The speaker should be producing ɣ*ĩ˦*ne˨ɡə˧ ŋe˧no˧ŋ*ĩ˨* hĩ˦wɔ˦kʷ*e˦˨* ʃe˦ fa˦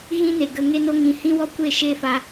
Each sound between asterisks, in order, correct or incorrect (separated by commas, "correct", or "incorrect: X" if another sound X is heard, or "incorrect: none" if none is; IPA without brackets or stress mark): correct, correct, correct